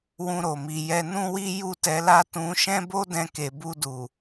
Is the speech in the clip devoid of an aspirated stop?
yes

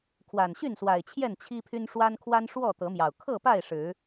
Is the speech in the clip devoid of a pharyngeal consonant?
yes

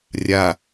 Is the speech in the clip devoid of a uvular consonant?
yes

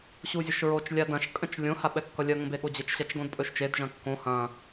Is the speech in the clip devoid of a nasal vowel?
no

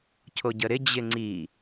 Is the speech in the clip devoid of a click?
no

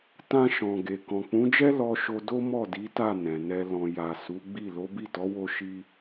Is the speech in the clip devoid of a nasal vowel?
no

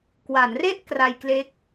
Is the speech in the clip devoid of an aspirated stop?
yes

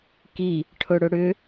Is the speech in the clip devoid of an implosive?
yes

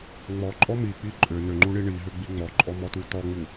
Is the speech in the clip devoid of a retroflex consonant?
no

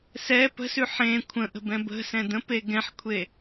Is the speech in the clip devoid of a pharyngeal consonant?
no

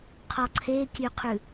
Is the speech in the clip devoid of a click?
no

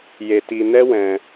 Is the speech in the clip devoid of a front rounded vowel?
yes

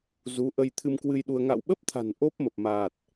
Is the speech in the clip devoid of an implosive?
no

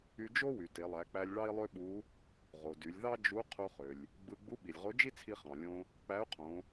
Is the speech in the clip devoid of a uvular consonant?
no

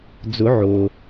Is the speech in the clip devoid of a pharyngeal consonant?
no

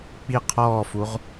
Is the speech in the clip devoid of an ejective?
yes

